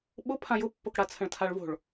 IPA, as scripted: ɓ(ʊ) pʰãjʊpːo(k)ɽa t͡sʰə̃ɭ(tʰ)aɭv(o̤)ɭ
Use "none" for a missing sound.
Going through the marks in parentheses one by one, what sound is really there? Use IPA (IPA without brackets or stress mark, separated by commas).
ʊ, k, tʰ, o̤